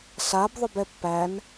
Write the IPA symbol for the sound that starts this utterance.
s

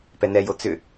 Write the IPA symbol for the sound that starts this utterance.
p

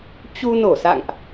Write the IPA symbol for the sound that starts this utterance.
t͡ɕ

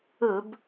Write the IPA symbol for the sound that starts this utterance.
ɵ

